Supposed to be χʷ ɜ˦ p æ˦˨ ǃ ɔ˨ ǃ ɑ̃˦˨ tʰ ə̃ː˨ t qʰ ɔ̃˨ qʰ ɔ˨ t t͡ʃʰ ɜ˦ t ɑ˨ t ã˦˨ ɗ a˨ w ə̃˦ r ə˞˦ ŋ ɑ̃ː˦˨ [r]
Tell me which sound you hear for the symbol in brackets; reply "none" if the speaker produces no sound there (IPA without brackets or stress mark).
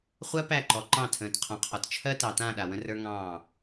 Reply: none